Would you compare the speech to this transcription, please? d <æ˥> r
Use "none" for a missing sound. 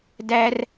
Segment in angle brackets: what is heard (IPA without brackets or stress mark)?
æ˥